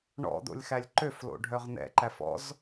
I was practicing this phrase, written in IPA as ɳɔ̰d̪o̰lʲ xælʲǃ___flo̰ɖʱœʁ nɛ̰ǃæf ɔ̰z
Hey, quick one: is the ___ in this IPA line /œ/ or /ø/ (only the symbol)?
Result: ø